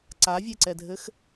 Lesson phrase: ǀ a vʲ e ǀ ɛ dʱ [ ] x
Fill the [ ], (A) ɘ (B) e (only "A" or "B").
A